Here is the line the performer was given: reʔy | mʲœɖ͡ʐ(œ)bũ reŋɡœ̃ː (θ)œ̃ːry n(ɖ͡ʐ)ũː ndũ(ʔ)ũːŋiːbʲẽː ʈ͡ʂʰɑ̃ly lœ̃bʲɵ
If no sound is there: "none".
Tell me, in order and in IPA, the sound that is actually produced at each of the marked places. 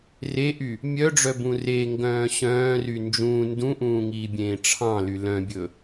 œ, ɕ, d͡ʒ, ʔ

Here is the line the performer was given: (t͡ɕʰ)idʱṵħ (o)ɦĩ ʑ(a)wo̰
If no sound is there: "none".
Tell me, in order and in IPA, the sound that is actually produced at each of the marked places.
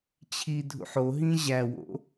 t͡ɕʰ, o, æ

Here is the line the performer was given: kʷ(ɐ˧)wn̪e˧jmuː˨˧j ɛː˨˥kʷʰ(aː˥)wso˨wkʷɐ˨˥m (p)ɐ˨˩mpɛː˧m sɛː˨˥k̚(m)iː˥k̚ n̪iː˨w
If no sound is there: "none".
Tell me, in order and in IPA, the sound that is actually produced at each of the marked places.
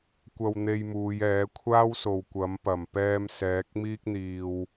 ɐ˧, aː˥, p, m

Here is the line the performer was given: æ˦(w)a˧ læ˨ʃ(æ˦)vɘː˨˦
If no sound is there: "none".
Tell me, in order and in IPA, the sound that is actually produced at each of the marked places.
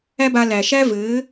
b, æ˦

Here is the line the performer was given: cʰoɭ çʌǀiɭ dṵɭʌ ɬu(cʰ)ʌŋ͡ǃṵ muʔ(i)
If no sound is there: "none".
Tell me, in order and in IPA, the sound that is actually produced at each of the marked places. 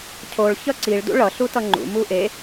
t, e

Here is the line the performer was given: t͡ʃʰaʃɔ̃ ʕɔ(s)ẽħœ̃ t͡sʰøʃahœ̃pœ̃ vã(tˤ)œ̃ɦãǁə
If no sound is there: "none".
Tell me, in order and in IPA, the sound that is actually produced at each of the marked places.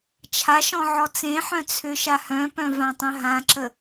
t͡s, tˤ

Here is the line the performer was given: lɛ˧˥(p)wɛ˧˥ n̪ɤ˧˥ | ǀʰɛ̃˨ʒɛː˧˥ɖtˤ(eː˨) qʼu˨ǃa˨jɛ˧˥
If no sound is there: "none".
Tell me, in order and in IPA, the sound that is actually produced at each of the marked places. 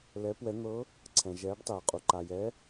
p, eː˨

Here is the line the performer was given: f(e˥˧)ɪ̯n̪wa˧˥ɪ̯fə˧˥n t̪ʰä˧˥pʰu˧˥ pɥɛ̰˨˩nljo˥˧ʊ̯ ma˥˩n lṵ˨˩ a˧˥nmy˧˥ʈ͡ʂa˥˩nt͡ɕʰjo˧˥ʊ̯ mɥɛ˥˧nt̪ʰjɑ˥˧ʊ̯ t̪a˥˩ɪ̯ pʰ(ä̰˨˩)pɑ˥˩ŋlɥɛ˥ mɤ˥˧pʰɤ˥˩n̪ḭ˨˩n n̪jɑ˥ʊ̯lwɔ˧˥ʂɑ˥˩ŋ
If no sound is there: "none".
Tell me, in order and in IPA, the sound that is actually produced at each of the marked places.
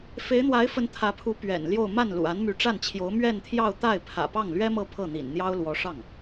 e˧˥, ä̰˨˩

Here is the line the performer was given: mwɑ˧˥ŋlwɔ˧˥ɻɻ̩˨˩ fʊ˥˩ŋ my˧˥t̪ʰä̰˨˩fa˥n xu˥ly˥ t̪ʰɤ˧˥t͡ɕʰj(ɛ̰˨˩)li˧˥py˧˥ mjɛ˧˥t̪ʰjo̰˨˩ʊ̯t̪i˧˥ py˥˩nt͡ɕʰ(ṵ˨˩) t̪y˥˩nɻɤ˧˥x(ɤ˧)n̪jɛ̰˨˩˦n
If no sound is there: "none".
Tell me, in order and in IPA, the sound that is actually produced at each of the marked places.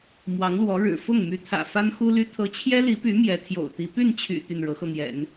ɛ˥, y̰˨˩, ɤ˧

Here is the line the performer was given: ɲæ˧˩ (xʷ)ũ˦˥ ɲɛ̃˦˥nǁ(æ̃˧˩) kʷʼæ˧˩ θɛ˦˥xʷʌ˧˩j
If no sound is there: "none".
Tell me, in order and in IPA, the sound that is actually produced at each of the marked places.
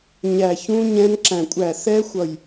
ç, æ̃˧˩

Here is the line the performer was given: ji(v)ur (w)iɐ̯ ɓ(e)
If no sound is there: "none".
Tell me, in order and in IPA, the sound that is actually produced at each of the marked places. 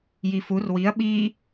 f, w, i

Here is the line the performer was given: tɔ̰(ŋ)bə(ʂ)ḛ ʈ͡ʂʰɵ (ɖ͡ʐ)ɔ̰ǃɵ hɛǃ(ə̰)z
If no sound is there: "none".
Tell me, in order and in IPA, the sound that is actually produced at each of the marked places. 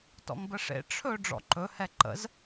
ŋ, ʂ, ɖ͡ʐ, ə̰

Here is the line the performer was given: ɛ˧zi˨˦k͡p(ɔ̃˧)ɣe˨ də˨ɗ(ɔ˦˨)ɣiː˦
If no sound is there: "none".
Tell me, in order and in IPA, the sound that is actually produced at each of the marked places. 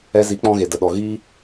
ɔ̃˧, ɔ˨

